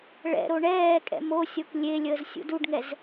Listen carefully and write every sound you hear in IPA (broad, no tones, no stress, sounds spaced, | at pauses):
ɭ ɛ̰ ɾ o ɳ ɛː kʼ ɛ̰ m o sʲ o k lʲ e lʲ əː z sʲ ṵ d u ɖ ŋ ɛ z